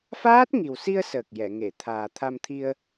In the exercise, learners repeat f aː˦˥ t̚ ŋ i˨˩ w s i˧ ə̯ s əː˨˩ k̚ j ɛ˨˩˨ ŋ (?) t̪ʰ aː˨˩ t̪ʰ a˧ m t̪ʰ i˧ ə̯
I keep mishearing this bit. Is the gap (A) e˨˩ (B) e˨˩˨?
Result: B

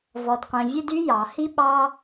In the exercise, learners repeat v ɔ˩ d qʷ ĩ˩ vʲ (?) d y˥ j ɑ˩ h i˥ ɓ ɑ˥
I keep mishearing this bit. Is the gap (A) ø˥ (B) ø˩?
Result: A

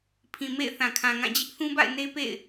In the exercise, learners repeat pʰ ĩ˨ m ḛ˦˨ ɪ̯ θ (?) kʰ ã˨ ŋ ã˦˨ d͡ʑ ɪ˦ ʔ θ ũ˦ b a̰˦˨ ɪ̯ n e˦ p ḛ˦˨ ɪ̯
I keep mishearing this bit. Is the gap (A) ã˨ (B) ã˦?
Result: A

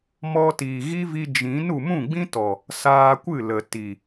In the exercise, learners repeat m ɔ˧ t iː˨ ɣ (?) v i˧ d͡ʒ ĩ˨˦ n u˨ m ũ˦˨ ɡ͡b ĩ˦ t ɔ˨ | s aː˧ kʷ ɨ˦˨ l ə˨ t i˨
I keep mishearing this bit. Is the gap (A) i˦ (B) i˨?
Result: A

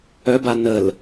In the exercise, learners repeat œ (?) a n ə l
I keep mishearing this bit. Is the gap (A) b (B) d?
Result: A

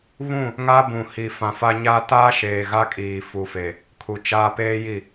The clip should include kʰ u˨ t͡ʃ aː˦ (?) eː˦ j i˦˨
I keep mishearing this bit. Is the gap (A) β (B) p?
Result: B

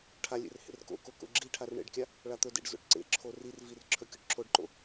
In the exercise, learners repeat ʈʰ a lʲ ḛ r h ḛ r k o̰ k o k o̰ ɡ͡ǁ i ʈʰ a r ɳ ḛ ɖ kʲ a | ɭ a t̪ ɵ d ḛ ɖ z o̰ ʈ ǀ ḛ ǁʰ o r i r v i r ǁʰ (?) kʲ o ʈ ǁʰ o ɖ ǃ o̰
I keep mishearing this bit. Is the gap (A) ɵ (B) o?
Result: A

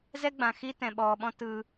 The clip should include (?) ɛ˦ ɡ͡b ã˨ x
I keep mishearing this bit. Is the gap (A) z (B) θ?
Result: A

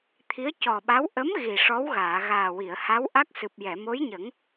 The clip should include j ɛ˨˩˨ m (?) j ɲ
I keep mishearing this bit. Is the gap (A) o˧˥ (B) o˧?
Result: A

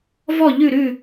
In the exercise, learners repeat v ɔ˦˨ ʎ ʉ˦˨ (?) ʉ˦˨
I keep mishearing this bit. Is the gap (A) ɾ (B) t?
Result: A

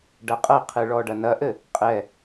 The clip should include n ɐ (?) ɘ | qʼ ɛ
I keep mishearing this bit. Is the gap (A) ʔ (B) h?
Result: A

